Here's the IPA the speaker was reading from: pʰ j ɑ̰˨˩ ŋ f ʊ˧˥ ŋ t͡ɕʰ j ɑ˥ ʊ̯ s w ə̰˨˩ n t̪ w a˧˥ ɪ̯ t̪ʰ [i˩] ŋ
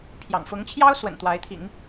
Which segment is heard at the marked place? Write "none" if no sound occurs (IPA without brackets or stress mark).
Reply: ḭ˨˩˦